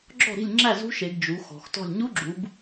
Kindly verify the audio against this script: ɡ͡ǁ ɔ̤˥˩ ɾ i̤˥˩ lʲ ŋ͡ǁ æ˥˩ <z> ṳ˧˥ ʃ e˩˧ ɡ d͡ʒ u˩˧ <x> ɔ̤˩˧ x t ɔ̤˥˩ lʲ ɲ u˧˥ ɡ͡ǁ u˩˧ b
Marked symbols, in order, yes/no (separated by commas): yes, yes